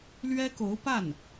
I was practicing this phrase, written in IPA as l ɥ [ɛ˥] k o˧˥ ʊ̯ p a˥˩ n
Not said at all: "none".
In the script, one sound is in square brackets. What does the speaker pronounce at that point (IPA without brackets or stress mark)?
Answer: ɛ˥